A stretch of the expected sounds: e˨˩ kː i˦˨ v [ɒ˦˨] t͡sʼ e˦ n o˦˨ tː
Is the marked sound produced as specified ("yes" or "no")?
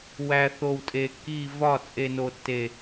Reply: yes